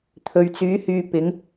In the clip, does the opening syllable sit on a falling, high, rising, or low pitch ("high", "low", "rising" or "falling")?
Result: low